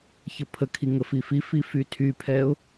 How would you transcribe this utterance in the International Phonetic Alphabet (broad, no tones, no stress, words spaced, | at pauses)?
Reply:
çəpʰəkʰi ŋəfififi fytʰypʰɛʊ̯